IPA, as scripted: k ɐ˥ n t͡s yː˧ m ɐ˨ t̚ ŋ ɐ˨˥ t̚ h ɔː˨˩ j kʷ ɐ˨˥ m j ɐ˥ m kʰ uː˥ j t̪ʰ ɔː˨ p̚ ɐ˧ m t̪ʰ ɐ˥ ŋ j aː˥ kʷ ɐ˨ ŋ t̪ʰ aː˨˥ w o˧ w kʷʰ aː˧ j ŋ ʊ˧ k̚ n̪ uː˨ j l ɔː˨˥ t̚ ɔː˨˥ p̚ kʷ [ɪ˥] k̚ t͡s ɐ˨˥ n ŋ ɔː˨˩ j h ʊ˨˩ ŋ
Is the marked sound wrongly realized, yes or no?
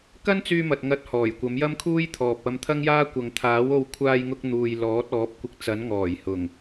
yes